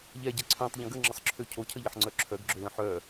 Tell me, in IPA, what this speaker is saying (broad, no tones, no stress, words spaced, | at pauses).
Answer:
ʎɛɟɛ ǀʰœ̃tˤʎə̃ ɡəŋ͡ǁəsˤǁʰø cʰocʰəʎəħŋ͡ǀœ ǁʰœɡɡ͡ǁølə̃ ħœ